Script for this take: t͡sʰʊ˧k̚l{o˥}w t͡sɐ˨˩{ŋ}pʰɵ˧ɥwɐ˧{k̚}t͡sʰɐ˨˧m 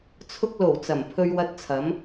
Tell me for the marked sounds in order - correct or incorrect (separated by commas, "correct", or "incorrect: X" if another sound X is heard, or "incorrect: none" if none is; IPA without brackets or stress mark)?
incorrect: o˨˩, incorrect: m, incorrect: t̚